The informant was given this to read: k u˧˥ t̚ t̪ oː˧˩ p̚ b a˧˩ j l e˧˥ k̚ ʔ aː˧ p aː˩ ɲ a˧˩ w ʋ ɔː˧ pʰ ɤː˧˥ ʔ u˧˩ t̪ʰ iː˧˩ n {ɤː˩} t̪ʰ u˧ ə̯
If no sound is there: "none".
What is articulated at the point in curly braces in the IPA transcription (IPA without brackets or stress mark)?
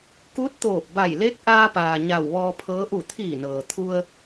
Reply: ɤː˩